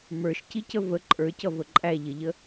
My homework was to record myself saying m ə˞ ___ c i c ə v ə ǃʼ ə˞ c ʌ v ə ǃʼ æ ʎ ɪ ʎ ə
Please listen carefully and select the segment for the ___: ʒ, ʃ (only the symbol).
ʃ